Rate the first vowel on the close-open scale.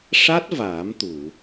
open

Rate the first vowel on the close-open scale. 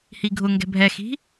close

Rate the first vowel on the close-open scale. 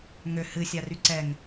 mid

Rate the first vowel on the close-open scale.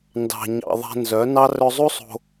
open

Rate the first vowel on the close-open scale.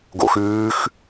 mid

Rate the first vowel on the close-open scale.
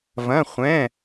open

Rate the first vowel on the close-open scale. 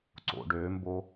mid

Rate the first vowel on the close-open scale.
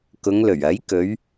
close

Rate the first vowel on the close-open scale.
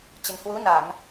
mid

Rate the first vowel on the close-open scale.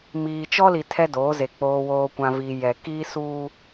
close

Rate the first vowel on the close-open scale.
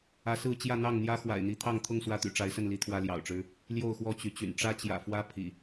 open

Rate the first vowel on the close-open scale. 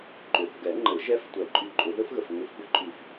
close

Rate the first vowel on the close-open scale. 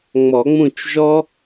mid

